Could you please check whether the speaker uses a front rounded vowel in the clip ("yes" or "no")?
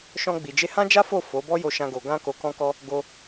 no